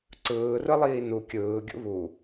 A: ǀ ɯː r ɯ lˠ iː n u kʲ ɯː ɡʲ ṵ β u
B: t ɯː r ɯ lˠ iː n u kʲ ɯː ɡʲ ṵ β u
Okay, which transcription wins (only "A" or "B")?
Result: A